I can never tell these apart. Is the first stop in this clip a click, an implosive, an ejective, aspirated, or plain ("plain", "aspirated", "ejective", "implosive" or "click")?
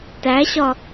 plain